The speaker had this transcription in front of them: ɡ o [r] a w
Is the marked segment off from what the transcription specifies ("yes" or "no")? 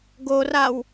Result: no